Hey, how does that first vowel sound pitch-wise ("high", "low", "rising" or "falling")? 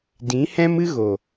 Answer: rising